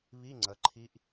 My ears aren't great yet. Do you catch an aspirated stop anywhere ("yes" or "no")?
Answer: yes